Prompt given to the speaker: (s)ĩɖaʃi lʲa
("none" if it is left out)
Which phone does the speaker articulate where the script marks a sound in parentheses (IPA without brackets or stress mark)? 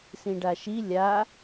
s